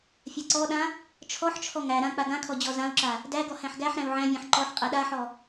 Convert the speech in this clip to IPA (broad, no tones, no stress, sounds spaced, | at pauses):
fʲ a ǀ ɔ ɗ ã | t͡ʃʰ ɔ ħ t͡ʃʰ ɔ ŋ æ ɾ ã k͡p a ɡ ã kʰ ɔ d͡ʑ ɔ z ã u̯ ǁ a | d æ ɡ ɔ h æ̃ ħ ɡ æ ħ ɾ æ̃ u̯ ʕ æ̃ vʲ æ̃ ħ ǃ ɔ ħ qʼ ɛ ɗ a ħ ɔ